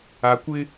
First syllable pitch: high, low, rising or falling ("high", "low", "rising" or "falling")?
rising